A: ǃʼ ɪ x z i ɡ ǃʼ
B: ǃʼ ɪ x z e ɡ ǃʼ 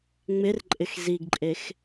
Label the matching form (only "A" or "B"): A